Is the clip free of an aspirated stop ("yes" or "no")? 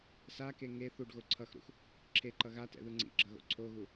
no